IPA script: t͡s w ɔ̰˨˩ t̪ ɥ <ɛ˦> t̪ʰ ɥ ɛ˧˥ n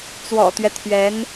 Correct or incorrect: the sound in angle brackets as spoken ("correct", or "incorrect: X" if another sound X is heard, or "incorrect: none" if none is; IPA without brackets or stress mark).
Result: correct